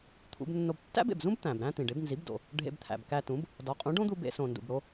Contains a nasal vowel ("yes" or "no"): yes